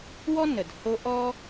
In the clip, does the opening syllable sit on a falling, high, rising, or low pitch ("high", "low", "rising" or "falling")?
high